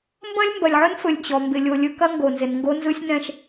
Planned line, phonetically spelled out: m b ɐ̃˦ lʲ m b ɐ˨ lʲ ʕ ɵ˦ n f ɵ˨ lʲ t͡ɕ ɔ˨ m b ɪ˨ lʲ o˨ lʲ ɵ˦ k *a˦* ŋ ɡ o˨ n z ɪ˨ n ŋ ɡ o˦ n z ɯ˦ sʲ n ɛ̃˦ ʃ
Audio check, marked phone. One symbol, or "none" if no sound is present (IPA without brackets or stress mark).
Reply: ɐ˦